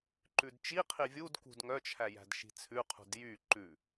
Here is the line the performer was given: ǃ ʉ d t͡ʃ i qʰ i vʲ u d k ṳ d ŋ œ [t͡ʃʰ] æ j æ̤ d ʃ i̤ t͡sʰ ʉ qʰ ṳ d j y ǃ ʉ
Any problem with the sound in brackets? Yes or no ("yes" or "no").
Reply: no